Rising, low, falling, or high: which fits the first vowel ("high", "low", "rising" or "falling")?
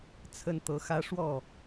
high